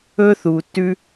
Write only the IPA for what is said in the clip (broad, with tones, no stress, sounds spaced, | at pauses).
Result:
ɵ˦ θ uː˨ tː ʉ˦